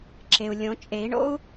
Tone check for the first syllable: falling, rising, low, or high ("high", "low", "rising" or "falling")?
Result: low